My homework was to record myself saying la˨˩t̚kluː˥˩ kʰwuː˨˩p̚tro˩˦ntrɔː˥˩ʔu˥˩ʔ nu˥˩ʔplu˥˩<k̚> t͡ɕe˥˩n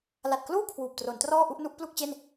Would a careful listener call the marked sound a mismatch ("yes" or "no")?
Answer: no